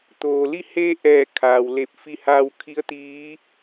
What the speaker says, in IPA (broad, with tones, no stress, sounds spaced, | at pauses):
t̪ oː˩ l i˥˨ h e˧ ʔ ɛː˧˩ kʰ aː˩ w l e˧˩ p̚ f i˧ h aː˧ w kʰ i˧˥ ə̯ t̪ iː˧˥